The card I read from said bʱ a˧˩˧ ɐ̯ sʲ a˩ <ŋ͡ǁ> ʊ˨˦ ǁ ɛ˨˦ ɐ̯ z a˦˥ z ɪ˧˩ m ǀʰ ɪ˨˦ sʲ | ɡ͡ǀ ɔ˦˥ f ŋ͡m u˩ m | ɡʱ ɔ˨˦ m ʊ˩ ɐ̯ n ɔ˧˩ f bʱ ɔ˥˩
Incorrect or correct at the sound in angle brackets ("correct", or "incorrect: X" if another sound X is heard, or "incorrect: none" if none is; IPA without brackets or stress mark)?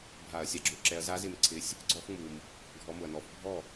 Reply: incorrect: ɡ͡ǁ